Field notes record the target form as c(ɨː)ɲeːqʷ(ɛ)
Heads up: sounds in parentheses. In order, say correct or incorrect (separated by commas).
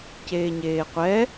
incorrect, correct